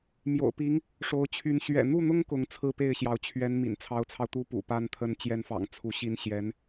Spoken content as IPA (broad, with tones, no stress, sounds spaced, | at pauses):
m j o̰˨˩ ʊ̯ p i˧˥ ŋ | ʂ o˧˥ ʊ̯ t͡ɕʰ y˧˥ n ɕ ɥ ɛ̰˨˩ n̪ u˥˩ n̪ ʊ˥ ŋ k ʊ˧˥ ŋ t͡sʰ ɹ̩˥˧ p e˥˩ ɪ̯ ɕ j ɑ˧˥ ʊ̯ t͡ɕʰ ɥ ɛ˧˥ n m ḭ˨˩ n t͡sʰ ɑ˧˥ ʊ̯ t͡sʰ ɑ˧ ʊ̯ t̪ u˥ p ṵ˨˩ p a˥ n t̪ʰ ə˧˥ n t͡ɕ j ɛ˧˥ n f ɑ̰˨˩ ŋ t͡sʰ u˧˥ ɕ i˥ n ɕ j ɛ˧˥ n